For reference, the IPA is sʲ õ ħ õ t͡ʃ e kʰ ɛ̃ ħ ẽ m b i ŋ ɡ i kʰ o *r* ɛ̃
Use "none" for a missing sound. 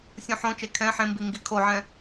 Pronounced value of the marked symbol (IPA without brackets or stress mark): ʕ